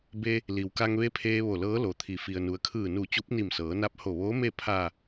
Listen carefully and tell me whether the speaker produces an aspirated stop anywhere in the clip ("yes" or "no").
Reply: yes